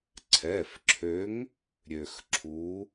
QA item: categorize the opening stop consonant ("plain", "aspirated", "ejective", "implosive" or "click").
click